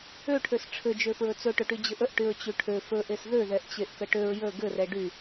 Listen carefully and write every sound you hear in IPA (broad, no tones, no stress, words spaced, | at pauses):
øʈʰøs ʈ͡ʂʰɘd͡ʒø fɹɵt͡sɵʈɵʈy d͡ʑɘʔəʔʈyɹ t͡ɕyʈʰø fɵʔes ðøðɛʔt͡ɕeʔ kəʈøɹ jə ɡɘrɛ ɖy